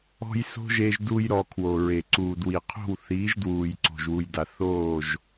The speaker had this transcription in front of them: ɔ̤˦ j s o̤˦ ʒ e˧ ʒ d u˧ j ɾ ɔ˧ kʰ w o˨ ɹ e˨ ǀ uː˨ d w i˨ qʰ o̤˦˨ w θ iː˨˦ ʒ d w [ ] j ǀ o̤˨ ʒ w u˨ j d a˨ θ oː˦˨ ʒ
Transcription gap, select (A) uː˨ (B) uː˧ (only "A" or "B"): A